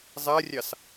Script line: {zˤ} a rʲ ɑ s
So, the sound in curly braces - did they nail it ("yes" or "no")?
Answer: yes